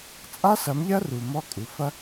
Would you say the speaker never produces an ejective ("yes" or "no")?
no